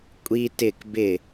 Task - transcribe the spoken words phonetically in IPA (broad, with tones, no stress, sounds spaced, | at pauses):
kʷʼ i˧ t ɪ˦˨ k b ɪ˦˨